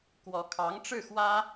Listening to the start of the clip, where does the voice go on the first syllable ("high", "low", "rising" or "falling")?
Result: rising